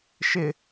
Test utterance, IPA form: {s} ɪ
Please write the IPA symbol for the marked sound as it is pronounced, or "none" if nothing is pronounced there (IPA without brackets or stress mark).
ʃ